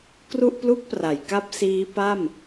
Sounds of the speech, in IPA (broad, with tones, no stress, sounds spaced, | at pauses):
k r u˥˩ ʔ p l u˥˩ k̚ p r a˩˦ j k a˥˩ p̚ s iː˦˥ p a˥˩ m